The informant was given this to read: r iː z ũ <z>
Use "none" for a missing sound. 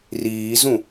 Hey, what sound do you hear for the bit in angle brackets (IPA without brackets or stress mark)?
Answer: none